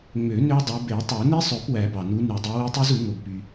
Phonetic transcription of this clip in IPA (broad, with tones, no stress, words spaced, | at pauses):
ŋ͡mø˨˩˦ nø˦˥dˤu˨˦ be˨˩˦tˤo˨˩˦ni˦˥sˤø˨˩˦p wæ˨˩˦bɑ˩nu˨˦ ny˨˩˦dˤi˨˦we˦˥tˤu˦˥z u˨˩˦ ŋo˩bpy˩